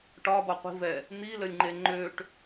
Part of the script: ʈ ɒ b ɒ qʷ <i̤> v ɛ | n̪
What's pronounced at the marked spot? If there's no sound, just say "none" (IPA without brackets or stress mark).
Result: i̤